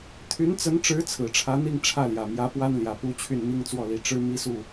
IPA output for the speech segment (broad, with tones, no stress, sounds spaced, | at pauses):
t̪ʰ y˧˥ n t͡s ə˧˥ n ʈ͡ʂ ɻ̩˧˥ t͡sʰ ɹ̩˨˩ ʈ͡ʂʰ ä˧˥ n̪ i˥˧ ŋ ʈ͡ʂʰ ä˥˩ l j ä˨˩ m j ä˧˥ p w a˥ n l j ä˨˩ p u˥ t͡ɕʰ y˥˩ n m i˥ ŋ t͡s w ɔ˥˩ l i˨˩ ʈ͡ʂ ɻ̩˥ m i˥ s u˥˩